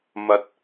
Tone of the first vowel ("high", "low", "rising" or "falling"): rising